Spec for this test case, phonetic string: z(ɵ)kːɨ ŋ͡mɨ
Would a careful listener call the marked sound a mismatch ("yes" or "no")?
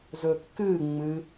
no